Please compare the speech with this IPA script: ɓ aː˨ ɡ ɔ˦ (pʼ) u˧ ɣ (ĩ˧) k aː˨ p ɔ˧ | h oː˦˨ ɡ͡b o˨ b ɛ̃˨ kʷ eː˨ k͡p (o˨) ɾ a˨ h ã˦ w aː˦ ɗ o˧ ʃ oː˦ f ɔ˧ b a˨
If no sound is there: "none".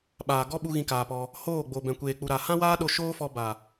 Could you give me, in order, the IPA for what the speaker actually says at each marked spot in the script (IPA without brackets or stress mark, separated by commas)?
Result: ɓ, ĩ˧, u˨